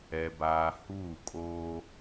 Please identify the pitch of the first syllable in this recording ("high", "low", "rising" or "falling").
low